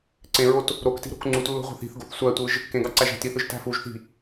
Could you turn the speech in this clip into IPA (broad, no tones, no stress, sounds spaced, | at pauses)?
ǀ ẽ ɹ o t | ɾ o k t i̤ ɾ o̤ k ŋ͡ǀ u t lː o̤ ʁʷ ɑ̤ θ i̤ θ ɡ o̤ θ sʷ æ tʷ ɯ ʒ | k ẽ ɡ ɑ ǀ æ ʒ æ̤ t i θ ɯ ʒ t æ̤ f u ʒ θ i̤